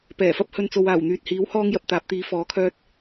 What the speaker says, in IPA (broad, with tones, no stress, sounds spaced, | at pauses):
p ɛː˨˩ f ɐ˥ p̚ h ɵ˧ n t͡s o˨ w aː˨˩ w n̪ yː˨ t̚ h iː˨˥ w h ɔː˥ ŋ j ɐ˨ p̚ t̪ aː˨˥ p̚ t̪ iː˨˥ f ɔː˨˥ kʰ œː˥ t̚